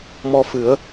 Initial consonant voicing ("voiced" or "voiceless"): voiced